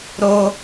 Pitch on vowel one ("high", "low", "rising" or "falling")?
high